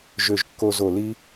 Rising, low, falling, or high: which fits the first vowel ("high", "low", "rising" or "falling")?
falling